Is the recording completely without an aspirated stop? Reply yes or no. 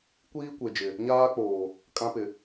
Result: yes